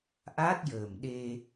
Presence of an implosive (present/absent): present